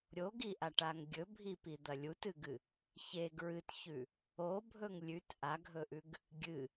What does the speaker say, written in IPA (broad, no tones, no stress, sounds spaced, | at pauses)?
ɾʲ o ɡ i ʔ a ʈ a ŋ ɡʲ ɵ bʱ i p i d̪ ɐ lʲ u t ɨ ɡ ɨ | ç e ɡ ɹ ɨ t ç ʉ | o bʱ ɵ ŋ lʲ ʉ t ʔ a ɡʱ ɵ ʔ ʉ ɡ | ɡʲ ɨ